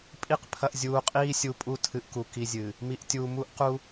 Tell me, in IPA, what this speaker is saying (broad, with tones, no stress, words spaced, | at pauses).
pʼi˦q pʰɐ˨ʔzʲuː˨qʼiː˦ sʲu˨pʼu˦tʰɨ˨ʔ ku˨ki˦zʲɨ˨ | mi˨ʔtʲuː˨ mu˦ʔqu˦